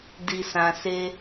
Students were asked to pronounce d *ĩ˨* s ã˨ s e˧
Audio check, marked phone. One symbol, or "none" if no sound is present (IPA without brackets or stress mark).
i˨